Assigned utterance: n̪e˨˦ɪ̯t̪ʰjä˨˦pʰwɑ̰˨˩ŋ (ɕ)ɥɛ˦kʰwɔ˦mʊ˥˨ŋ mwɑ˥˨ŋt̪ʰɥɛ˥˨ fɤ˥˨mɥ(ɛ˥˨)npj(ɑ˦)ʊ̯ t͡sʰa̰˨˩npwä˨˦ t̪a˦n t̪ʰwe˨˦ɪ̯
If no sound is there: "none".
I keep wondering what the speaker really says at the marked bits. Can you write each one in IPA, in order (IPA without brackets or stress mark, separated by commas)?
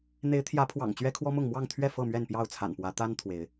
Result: t͡ɕ, ɛ˥˨, ɑ˥˨